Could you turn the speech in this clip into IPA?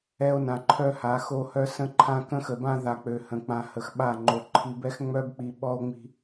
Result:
ɛ˦o̯ nã˨ǃʰœ˦ha˨˦ xo˦hœ˦ sə̃˦ǃʰã˦ kə̃˦xə˨bã˦ ða˨ k͡pø˨hə̃˨ k͡pã˨ hə˨xɓa˦˨ŋ͡ǃo˨ ǃʰi˨bɛ˦xŋ͡mœ˦bk͡pi˨ ɓɔ˦o̯ŋ͡mi̤˦

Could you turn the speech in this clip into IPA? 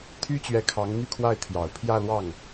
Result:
t̪ʰy˥t͡ɕɥɛ˧˥ kʰɑ˧˥ŋn̪y˥˧kʰwa˥˩ɪ̯ t̪ʰjɑ˨˩ʊ̯ pʰjä˥˧lwɑ˥˩ŋ

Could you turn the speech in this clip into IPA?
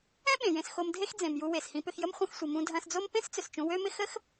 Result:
ɛ̃˥ɓẽ˩jẽ˩s xo˧mdʱe˥xd͡zẽ˩mju˧ we˩shĩ˧pʏ˧xjə˥m χʷɐ̃˧xsʷi˩ mũ˧dʱɐ̃˧sd͡zo˥m pẽ˥st͡sʏ˩s t͡ʃũ˧wø˥mɪ˥ xə˥x

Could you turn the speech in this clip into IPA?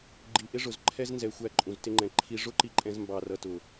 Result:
ɡ͡ǃi˨ʔɪ˦ ʐʊ˨zǃʰɛ˦znzɛ˨ xʷæ˦ǃʼũ˨ztɪ˦ŋ͡ǃɛ̃˨ ǃʰi˨ʐʊ˦ǃi˨ǃʼɛ̃˨z mbɑ˨rʌ˨tʊ˨

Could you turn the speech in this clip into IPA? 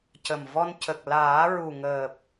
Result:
cə˨˩m vɔ˧n cə˨˩k̚ laː˨˩˦ɹu˨˩ŋəː˨˩p̚

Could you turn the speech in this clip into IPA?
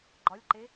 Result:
ɡ͡ǃɒlʲǃe

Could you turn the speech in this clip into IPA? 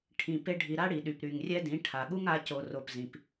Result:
ʈʰĩ˨ pe˦ɖʱi˧ ɾa˦ɽi˨ɗy˨p ɾy˨ŋrʲɛ˦dĩ˨˦ ʈʰa˨ɠu˦ŋa˨˦ co˨ro˨p zĩ˨p

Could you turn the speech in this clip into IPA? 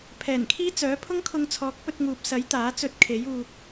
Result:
pʰɛː˨˩nkʰiː˥ t͡sœː˨˥pʰʊ˥ŋkʰʊ˧ŋ t͡sʰɔː˨˥k̚pɵ˧t̚ŋuː˨p̚sɐ˨˥j t̪aː˨˥t͡sɵ˧t̚kʰe˨˥j uː˧k̚

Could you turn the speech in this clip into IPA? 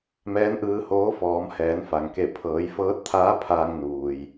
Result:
mɛː˧˥nʔɯː˧hoː˧˥ fɔː˩˧mhɛː˩˧nfa˩ŋke˧˩ pʰɤː˩˧jfɤː˧˥t̚t̪ʰaː˧˥ pʰaː˧ŋnuː˩j

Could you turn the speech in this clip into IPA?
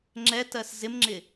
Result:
ŋ͡ǁɛtɜs zɪmŋ͡ǁɪ

